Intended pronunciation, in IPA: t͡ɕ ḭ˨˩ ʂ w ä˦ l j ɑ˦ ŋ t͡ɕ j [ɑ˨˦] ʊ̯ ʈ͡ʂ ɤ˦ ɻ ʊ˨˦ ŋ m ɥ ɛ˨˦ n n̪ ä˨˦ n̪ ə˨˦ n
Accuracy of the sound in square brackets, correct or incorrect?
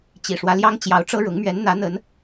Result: correct